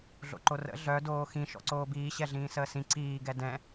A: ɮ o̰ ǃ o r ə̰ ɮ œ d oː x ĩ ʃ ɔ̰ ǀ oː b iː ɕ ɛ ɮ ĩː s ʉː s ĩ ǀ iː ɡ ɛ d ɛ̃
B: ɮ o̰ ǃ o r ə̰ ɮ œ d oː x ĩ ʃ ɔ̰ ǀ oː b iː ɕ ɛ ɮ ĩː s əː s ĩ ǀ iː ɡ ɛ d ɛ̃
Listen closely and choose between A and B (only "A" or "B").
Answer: B